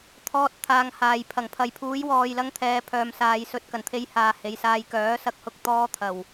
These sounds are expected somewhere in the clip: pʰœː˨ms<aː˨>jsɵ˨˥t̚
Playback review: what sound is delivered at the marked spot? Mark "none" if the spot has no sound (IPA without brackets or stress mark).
aː˨